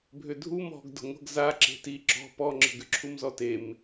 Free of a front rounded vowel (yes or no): no